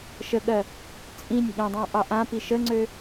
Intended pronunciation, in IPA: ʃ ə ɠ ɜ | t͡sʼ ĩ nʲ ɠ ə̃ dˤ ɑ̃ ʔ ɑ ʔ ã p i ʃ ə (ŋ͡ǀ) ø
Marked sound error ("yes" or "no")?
no